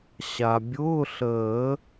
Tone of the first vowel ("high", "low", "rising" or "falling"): low